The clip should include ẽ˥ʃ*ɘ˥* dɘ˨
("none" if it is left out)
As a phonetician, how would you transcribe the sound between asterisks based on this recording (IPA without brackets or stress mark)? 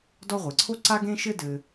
ɘ˥